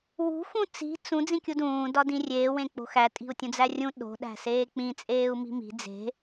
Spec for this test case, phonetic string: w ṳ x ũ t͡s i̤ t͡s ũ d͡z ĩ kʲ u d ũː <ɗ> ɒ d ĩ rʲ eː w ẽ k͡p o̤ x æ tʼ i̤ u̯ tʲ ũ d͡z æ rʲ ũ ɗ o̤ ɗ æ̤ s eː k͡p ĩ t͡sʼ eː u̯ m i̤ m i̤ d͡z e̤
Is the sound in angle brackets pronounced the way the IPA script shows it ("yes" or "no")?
no